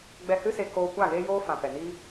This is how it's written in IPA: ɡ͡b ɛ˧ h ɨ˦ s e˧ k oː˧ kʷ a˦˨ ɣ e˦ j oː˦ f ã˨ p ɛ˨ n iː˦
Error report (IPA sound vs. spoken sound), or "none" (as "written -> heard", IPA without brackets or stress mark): none